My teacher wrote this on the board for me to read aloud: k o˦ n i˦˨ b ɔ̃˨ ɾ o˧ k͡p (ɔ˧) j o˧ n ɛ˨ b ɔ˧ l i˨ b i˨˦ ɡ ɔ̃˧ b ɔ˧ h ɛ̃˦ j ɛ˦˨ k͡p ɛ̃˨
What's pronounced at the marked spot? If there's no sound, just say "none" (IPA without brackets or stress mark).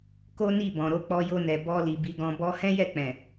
ɔ˧